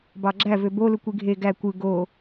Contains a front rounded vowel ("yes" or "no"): yes